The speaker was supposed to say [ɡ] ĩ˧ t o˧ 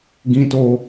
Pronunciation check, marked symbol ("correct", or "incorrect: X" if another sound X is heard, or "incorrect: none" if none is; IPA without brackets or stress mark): correct